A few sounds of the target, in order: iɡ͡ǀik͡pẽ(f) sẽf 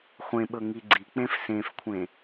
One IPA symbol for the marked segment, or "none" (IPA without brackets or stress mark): f